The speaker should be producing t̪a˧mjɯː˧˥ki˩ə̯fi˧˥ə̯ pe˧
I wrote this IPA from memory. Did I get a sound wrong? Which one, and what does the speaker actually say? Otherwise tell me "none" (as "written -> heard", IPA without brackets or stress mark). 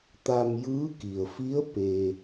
none